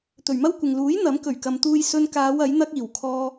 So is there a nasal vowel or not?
no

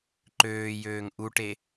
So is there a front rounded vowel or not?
yes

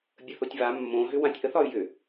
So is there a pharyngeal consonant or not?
no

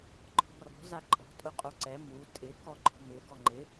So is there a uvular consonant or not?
yes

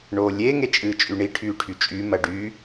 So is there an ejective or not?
yes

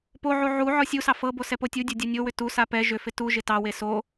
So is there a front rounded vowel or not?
yes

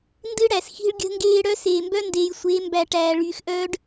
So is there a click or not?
no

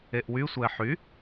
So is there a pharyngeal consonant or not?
yes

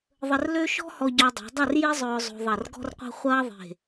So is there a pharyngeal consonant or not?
no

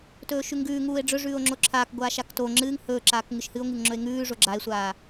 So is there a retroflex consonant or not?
yes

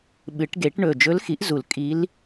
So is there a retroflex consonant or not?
yes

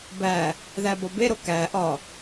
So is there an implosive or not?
no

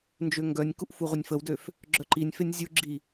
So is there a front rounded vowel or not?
yes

